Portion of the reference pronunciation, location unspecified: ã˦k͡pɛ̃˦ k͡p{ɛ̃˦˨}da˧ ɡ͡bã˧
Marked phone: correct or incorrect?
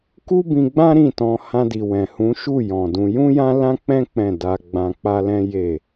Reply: correct